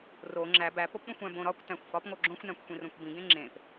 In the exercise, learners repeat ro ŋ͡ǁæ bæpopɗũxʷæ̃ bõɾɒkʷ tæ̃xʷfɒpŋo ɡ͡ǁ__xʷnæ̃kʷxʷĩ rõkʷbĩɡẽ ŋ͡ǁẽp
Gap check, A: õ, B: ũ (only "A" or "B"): A